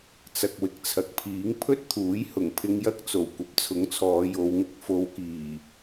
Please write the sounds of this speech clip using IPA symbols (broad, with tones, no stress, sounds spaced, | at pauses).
t͡s ɐ˨ k̚ w ɪ˨ k̚ t͡sʰ ɐ˨ k̚ pʰ iː˨˥ ŋ pʰ ɵ˥ t̚ t̪ʰ uː˨˥ j h ʊ˨˩ ŋ pʰ ɪ˧ ŋ j ɐ˥ k̚ t͡s o˨˩ w kʷ ɐ˨˥ p̚ t͡sʰ ʊ˨˥ ŋ t͡sʰ ɔː˨˧ j o˨˧ w ŋ ɪ˧ k̚ f o˨˧ w k iː˨˩